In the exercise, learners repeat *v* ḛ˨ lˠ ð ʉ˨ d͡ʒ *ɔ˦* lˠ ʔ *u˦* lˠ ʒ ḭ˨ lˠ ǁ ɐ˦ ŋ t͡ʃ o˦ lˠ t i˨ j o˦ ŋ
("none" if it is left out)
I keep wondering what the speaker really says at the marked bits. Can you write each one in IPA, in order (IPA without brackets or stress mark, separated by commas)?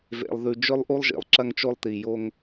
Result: v, ɵ˦, u˦